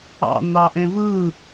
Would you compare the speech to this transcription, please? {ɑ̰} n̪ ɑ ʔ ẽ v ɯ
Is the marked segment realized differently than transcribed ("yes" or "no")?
no